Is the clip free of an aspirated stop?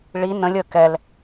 yes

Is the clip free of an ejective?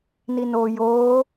yes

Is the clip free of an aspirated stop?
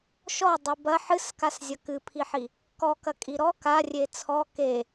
no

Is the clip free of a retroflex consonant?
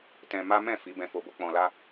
yes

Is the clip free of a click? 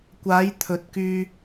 yes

